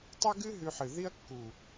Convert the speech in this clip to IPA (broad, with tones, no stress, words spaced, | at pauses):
tˤe˦ɡɨ˦ ɦʉ˧ħɨ˨ ði˦ɐ̯kːu˨